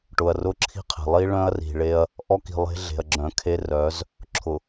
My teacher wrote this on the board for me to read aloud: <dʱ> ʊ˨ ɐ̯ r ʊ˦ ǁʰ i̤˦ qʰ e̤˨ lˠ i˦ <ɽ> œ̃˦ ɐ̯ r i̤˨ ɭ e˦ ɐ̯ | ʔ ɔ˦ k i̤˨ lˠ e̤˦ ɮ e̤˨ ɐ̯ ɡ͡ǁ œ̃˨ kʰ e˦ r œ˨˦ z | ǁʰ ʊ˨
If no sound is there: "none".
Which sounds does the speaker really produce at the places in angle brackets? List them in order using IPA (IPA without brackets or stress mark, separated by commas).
ʈ, ɭ